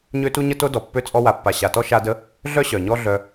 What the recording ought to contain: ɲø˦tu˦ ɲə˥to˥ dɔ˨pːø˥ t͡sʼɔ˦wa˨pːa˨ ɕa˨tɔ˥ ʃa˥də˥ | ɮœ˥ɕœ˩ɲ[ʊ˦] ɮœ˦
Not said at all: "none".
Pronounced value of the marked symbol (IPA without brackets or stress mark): ɔ˦